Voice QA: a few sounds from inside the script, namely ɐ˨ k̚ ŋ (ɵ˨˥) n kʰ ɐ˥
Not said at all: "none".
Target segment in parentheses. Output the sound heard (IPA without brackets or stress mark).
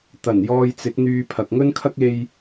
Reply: ɵ˥